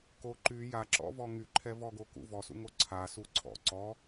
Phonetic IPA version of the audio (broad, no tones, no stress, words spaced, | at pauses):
ko ǃy jaǁɔ̰vɔ ŋyǃʰɛvɔɡo kṵ vɔsṵŋo ǀʰa suǀʰɔ̰ ǀɔ